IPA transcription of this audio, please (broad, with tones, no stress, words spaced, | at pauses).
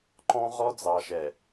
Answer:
ǃɔ̃˦ʁɔ˦ d͡zɑ˨ʃɛ˨